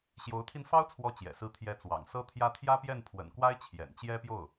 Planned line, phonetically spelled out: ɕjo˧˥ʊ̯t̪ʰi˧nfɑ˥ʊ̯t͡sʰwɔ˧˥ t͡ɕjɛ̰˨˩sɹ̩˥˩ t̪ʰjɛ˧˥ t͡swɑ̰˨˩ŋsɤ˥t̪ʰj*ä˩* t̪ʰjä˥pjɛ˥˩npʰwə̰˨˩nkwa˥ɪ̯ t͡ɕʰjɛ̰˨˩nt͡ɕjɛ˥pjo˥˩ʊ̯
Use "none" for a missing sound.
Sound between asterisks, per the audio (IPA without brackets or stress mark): ä˥